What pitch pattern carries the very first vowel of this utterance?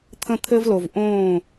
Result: high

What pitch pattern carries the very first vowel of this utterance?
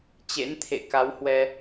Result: rising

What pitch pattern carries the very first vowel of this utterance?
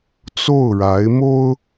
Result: falling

